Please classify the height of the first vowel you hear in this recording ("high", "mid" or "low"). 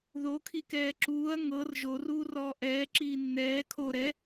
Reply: mid